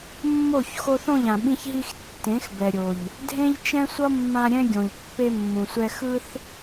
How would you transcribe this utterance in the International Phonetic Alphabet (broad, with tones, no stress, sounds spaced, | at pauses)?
mː o˦˨ ç x o˧ θ õ˦˨ ʎ ã˨ ɓ ĩ˧ ç ɦ i˧ x tː ẽ˨˦ x b ɛ˨ ɾʲ o˨ ʎ | dʱ ẽ˦ ʎ t͡ʃ ɛ̃˦ sʷ ʌ˦ mː ã˧ ɾʲ ɛ̃˧ ɡʲ õ˨ ʎ pː e˧ mː ũ˨ sʷ ɛ˧ x ɯ˧ θ